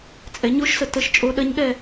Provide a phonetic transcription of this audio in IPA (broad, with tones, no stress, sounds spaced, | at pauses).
t͡sʼ ɛ˩˧ ɲ o˧˥ ʃ s ə˩ t ə˦˨ ʃ t͡ʃʼ o˧˥ ɗ ɐ˧˥ ɲ ɠ ɛ˦˨